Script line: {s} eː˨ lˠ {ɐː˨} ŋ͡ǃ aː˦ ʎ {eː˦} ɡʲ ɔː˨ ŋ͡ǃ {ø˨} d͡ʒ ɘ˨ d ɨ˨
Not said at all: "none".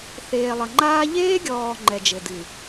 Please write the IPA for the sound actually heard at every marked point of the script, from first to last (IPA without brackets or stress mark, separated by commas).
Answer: θ, ɐ˨, eː˦, ɛ˨